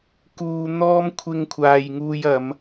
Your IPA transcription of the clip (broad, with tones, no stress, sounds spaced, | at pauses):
k uː˧ n̪ ɔː˥ m kʷʰ ɪ˧ ŋ kʷʰ aː˨ j ŋ uː˧ j ɐ˨˧ m